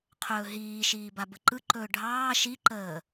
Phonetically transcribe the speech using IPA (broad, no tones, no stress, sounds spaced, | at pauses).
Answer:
qʰ ɵː ɦ iː ʃ iː b a b ə ǃ ɯ ǃ ɵː ɖʱ ɑː ʃ i ǃ əː